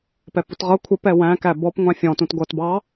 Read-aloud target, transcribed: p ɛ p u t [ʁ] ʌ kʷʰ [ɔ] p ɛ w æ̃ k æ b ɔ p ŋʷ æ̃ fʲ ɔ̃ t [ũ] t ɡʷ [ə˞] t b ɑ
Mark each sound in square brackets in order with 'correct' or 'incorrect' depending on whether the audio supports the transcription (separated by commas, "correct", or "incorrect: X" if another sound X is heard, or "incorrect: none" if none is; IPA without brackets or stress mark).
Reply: correct, incorrect: ə, correct, incorrect: ʌ